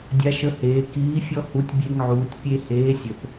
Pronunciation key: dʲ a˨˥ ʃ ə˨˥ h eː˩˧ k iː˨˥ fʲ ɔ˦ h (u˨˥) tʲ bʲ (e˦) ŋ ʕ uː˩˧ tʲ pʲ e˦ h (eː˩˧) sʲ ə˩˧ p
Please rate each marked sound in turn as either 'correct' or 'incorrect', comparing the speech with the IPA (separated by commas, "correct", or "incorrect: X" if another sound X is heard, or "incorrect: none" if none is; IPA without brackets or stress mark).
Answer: correct, correct, incorrect: eː˨˥